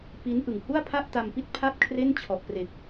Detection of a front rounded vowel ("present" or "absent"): absent